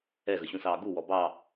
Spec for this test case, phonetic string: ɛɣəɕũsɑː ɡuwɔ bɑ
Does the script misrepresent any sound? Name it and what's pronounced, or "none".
none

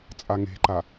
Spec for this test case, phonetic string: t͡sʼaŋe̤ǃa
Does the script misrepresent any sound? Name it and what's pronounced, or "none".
none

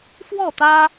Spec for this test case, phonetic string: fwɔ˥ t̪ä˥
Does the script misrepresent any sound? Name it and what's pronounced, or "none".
ɔ˥ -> ɔ˥˩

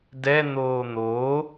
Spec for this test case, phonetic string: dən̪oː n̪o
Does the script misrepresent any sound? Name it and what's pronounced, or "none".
ə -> ɛ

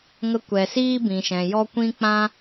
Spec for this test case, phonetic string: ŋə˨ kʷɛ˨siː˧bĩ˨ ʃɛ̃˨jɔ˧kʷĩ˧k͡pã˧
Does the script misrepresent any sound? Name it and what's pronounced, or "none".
ə˨ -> ə˧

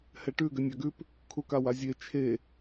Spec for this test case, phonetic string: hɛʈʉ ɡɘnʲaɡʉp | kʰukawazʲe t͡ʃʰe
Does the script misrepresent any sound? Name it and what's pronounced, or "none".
none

